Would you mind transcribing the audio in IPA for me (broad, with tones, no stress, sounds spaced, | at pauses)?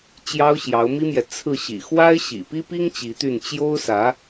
t͡ɕ j ɑ˥ ʊ̯ ɕ j ɑ˧˥ ʊ̯ m i˥ m j ɛ˨ t͡sʰ ɹ̩˥˩ ɕ ḭ˨˩ x w a˥ ɪ̯ ɕ ḭ˨˩ p i˥ p i˥ ŋ t͡ɕ i˧˥ t̪ y˥˩ n t͡ɕ j o˥ ʊ̯ s ä˧˥